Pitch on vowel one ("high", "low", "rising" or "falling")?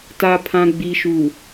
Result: low